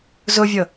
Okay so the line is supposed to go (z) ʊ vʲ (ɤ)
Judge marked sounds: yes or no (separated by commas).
yes, yes